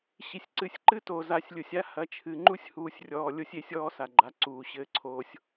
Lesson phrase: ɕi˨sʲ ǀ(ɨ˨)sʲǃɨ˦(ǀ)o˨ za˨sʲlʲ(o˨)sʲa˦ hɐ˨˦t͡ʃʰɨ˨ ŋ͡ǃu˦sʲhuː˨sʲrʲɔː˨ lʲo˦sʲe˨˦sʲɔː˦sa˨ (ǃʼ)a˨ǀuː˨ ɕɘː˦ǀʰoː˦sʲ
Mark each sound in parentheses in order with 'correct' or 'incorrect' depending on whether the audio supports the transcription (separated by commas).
correct, incorrect, correct, incorrect